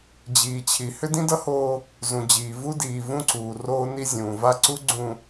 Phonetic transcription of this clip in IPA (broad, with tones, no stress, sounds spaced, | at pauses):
d͡ʑ iː˨ t͡ɕʰ i˨ h ʏ˦ d ĩ˦ d ʌ˦ h oː˦ | z ũ˨ d͡ʑ iː˨ v u˦ d iː˨ v ũ˦ ǀ uː˨ r oː˦ n i˦ zʲ ũː˨ v a˦ ǀ u˦ ɡ͡ǀ ũ˨